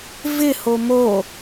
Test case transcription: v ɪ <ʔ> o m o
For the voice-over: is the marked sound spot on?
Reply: no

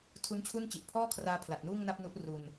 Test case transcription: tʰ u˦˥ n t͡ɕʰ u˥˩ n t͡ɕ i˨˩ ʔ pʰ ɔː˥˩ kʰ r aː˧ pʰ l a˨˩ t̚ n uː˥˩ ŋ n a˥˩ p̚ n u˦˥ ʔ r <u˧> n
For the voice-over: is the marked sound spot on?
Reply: yes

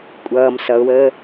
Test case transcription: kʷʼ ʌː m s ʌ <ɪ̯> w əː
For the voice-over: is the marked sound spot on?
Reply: no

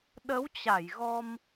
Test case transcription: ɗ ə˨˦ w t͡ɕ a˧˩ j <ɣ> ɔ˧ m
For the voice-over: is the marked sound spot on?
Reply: yes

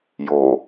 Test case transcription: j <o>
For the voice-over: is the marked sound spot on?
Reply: yes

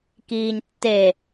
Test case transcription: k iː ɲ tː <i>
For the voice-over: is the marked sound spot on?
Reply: no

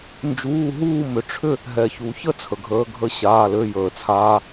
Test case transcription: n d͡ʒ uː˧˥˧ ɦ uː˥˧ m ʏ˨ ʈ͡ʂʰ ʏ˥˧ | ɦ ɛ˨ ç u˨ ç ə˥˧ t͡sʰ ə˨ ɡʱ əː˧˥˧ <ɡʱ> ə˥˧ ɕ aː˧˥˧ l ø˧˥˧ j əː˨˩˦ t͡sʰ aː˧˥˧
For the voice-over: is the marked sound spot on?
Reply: yes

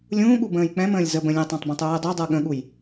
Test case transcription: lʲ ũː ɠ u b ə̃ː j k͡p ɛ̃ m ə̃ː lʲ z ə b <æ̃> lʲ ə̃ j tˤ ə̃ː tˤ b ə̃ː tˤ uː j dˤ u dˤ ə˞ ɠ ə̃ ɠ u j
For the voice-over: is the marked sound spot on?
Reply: no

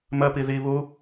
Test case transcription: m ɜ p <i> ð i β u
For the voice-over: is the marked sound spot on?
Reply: yes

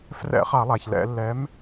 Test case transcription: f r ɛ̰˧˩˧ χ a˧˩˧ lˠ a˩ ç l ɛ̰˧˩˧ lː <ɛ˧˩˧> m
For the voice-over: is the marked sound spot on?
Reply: no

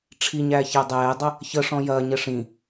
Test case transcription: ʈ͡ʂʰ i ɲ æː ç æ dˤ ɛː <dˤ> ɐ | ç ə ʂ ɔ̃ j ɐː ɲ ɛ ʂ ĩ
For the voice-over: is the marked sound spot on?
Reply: yes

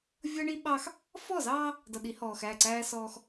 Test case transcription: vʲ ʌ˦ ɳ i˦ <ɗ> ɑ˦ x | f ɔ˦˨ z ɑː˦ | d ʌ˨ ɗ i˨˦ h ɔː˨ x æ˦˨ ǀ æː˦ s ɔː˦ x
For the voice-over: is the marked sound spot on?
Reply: no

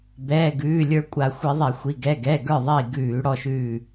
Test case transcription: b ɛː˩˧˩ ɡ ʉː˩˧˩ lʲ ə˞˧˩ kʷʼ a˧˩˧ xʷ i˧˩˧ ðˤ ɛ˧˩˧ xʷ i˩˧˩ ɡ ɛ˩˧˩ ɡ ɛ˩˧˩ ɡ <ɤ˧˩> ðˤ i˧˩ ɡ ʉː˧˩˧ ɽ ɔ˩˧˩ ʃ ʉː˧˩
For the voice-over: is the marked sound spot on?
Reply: no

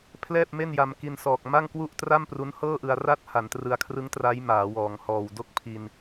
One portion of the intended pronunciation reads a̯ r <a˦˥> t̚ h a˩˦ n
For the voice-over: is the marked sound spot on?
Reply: yes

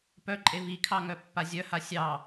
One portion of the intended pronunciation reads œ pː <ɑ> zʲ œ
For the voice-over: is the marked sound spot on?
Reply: no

